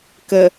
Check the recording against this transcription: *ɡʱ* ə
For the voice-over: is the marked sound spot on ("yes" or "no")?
no